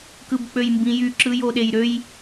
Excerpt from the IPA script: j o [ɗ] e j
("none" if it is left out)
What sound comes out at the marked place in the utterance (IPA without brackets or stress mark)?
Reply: ɗ